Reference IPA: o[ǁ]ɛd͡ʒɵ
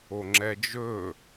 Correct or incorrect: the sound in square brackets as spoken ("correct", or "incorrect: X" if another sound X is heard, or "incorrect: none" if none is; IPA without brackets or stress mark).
incorrect: ŋ͡ǁ